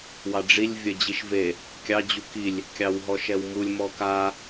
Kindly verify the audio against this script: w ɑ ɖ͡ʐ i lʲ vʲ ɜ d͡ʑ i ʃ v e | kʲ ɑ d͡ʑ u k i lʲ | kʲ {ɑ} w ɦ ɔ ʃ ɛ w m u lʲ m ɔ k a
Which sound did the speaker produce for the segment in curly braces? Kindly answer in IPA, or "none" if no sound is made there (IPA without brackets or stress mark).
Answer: ɑ